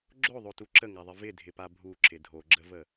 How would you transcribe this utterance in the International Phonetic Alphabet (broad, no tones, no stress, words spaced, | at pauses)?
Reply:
ɡ͡ǁoðˤotu ǁəŋaðˤɪ vɪdʱɪpa bʱuǁɪ dʱoɡ͡ǁəvə